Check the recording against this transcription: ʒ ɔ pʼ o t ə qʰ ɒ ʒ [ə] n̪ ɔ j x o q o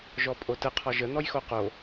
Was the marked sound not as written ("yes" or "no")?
no